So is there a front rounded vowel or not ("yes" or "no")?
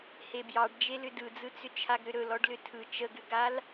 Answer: yes